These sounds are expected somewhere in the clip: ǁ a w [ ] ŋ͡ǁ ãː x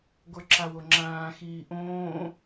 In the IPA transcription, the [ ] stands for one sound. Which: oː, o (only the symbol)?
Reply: o